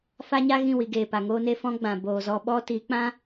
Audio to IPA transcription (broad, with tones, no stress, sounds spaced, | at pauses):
f a˦ ɲ a˦ ɣ ĩ˦˨ w i˨ ɡ eː˨ p a˨ ŋ oː˧ n e˧ f ɔ̃˦ ɡ͡b ã˨ b oː˨ z ɔ˧ ɓ ɔ˦ t i˨˦ k͡p ã˦